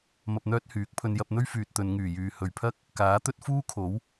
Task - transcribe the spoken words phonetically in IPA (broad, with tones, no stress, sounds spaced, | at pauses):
m ɐ˧ p̚ n̪ œː˥ t̚ h yː˨˥ k̚ pʰ ɵ˧ n j ɐ˧ p̚ n̪ ɵ˥ ɥ f yː˨ t̚ t̪ ɵ˨˧ n ŋ yː˨˩ j yː˨ h ɵ˨˩ ɥ pʰ ɐ˥ k̚ | k aː˨˥ t̪ ɵ˥ t̚ f uː˥ kʰ o˨˥ w